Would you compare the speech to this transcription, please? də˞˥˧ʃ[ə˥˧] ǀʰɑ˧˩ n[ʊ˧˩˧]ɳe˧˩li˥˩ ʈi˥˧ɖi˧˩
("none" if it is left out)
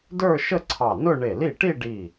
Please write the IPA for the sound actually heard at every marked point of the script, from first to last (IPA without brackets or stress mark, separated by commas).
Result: ə˥˧, ʊ˥˧